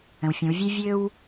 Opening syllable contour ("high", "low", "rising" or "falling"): low